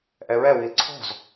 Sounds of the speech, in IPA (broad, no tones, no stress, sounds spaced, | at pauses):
ʔ ɛ ɹ ɛ w i l ǀʰ ɔ̤ z